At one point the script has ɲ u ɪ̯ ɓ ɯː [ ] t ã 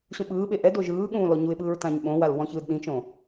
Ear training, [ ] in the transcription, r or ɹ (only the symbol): ɹ